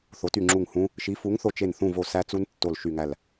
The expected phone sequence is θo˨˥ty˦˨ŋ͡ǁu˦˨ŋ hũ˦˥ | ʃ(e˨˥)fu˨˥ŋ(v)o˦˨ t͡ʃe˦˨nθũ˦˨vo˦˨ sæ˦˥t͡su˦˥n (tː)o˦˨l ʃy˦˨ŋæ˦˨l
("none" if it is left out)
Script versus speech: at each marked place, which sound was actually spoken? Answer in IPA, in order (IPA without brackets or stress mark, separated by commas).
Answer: i˨˥, θ, tː